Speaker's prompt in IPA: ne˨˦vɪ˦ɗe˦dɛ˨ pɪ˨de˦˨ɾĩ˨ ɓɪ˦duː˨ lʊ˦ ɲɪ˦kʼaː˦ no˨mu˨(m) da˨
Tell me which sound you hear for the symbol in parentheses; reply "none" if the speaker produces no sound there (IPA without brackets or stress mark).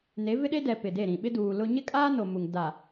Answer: ŋ